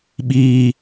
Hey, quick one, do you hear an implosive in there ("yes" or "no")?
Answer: yes